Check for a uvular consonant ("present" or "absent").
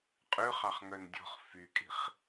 present